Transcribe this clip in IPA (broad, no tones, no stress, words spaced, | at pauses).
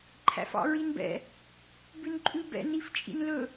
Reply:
ǃʰæ̰fɑ̰ɹinbɛ̰ | bʉnǃʼʉbɛ̰ nift͡ʃʼḭnlɵ